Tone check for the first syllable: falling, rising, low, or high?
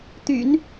low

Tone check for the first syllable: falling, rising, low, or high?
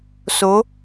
rising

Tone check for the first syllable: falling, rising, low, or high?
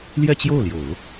falling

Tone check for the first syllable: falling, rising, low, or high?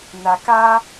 low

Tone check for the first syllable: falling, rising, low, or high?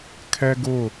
high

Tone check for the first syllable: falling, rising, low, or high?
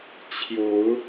rising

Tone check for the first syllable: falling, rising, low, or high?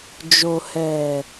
low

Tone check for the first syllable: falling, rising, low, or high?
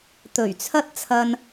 low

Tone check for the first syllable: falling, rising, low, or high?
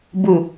low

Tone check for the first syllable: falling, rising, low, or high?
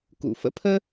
low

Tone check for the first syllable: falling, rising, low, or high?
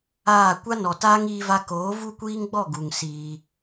falling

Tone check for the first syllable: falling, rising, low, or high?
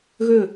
falling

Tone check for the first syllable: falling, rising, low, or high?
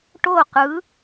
falling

